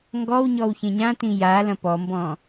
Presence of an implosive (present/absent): absent